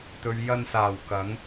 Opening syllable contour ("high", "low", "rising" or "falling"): low